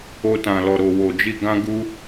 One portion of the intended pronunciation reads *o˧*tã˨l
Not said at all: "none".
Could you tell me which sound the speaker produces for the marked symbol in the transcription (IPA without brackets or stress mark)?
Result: o˧